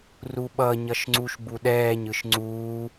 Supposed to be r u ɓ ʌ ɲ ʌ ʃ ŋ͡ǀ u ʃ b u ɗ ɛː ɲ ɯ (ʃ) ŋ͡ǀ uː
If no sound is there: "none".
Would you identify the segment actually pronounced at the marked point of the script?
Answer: ʃ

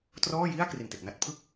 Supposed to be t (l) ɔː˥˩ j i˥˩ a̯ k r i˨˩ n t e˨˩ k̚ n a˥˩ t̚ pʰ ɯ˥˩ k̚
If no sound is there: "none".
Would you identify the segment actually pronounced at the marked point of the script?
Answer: r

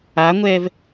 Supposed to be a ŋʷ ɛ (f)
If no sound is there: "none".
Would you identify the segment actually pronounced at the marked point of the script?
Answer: v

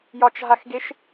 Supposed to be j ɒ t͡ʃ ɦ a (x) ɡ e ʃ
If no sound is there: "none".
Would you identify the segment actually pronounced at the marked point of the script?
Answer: x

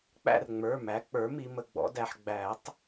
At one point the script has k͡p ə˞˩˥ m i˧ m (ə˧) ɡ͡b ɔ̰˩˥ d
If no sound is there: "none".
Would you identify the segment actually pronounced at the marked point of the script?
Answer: ə˧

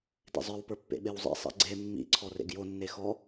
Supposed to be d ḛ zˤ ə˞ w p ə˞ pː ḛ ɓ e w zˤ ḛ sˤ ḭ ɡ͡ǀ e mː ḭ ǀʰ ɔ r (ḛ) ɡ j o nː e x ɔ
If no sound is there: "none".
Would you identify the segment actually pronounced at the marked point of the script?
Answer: ḛ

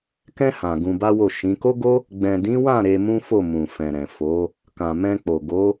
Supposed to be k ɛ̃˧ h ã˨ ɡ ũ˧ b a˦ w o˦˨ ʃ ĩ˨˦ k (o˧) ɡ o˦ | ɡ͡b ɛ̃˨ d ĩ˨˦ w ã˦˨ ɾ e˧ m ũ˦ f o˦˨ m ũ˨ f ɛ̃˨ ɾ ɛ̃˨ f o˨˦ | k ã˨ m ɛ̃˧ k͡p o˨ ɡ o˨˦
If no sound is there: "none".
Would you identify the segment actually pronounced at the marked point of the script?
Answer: o˦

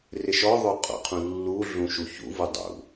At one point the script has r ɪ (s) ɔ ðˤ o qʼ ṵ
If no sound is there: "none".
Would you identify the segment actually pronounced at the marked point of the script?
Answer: ʃ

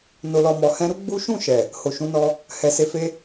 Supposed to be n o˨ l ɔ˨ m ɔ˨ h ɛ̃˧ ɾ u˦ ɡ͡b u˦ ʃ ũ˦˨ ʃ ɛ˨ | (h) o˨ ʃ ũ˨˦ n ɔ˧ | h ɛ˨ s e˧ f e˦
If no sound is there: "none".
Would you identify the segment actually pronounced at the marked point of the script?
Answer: h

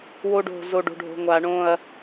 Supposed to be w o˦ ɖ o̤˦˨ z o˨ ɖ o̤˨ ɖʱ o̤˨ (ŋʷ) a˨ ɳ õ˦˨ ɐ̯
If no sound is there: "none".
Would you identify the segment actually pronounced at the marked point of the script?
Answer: ŋʷ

